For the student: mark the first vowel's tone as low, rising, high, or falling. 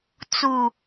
low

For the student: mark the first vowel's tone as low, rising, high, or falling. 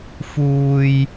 high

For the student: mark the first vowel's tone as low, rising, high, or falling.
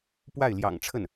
falling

